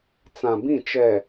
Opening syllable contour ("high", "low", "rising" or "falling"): low